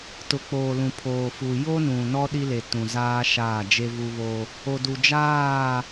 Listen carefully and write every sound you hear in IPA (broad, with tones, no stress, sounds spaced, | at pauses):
t ʊ˨ k͡p oː˨ l ũ˨ pʰ oː˨ f u˨ j o˦ n ũ˨ n ɔ˦ ɗ i˦ l e˨ t ũ˨ z aː˦ ʃ aː˦˨ d͡ʒ e˦ v u˦ β o˦ | o˨ d u˨ d͡ʒ aː˦˨